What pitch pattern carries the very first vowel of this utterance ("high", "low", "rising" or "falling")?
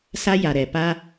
high